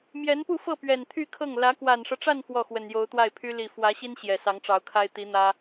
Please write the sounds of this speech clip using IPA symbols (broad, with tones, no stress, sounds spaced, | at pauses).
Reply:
m j ɛ˧˥ n p u˥˧ f ɤ˥˩ p ɥ ɛ˨˩ n t̪ʰ y˥˧ kʰ ɤ˥˩ ŋ l ä˧˥ k w a˨˩ n ʂ ɤ˦ ʈ͡ʂ a˥˧ n f w ɔ˥˩ x w ə˨˩ n j o˧˥ ʊ̯ t̪ w a˥˩ ɪ̯ pʰ y˥ l i˨˩ f w ä˧˥ ɕ i˥ n ɕ j ɛ˨˩ s ɑ˧˥ ŋ ʈ͡ʂ ɑ˧˥ ʊ̯ kʰ a˥ ɪ̯ t̪ i˧˥ n̪ ä˥